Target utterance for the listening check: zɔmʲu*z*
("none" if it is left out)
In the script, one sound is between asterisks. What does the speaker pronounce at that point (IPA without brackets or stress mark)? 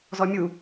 none